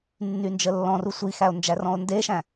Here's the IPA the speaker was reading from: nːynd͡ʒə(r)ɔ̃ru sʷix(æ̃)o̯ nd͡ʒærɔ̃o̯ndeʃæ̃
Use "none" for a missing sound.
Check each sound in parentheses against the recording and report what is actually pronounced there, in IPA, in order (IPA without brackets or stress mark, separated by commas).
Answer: lː, æ